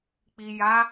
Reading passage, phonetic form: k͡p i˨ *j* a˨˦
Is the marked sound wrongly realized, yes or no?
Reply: no